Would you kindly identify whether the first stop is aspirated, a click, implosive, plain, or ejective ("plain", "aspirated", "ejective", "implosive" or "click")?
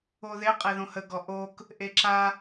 ejective